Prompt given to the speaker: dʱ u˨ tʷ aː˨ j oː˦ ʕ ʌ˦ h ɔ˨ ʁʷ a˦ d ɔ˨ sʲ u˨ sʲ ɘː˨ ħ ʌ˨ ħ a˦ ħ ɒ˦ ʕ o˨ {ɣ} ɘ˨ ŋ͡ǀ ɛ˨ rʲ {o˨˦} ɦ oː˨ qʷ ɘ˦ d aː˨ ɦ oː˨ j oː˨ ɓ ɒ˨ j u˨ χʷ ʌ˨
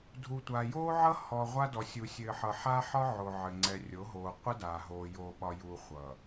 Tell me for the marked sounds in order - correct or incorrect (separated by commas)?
incorrect, correct